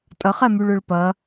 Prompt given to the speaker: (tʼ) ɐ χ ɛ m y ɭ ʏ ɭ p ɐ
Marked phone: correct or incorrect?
correct